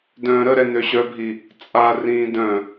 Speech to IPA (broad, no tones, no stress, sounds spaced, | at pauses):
d œ̃ː ɾ ə ɾ ɛ n ø ɕ œ bʱ i | t͡sʼ a r ĩː d œ̃